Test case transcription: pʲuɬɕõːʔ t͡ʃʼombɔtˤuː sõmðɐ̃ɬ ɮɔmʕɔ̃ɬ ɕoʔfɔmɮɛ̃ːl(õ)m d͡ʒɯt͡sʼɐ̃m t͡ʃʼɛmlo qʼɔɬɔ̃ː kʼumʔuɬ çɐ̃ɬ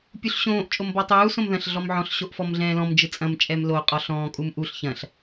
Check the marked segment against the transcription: incorrect: ɔ̃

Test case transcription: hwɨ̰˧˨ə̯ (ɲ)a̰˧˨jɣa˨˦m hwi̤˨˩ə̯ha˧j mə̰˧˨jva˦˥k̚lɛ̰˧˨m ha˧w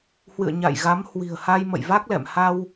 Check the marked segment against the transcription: correct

